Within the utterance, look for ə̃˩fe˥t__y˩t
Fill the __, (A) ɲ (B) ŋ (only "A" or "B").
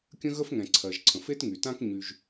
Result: B